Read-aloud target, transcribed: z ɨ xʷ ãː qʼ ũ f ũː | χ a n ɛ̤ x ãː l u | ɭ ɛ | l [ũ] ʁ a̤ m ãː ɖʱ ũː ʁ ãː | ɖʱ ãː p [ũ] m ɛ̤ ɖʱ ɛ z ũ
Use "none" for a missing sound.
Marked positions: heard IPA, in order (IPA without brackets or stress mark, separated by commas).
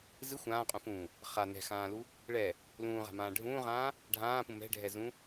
ũː, ũ